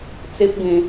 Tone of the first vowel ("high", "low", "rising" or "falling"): high